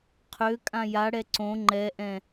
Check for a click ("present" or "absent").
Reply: present